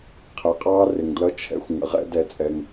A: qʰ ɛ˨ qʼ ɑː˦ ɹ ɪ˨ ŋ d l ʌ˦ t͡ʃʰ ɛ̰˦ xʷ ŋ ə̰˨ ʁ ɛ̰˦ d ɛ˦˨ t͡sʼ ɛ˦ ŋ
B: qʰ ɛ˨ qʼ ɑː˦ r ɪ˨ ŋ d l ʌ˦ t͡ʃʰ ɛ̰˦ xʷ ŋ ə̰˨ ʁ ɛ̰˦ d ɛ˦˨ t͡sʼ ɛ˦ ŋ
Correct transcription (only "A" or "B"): B